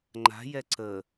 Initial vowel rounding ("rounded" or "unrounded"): unrounded